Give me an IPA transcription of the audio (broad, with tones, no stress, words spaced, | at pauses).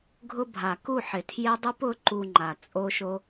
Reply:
ɡʱʊ˧ bʱa˨ku˦˨ħɪ˨ tʰje˦dˤu˦p ʊ˦ǃu˧ŋ͡ǃa˨ t͡sʼo˦ʃo˦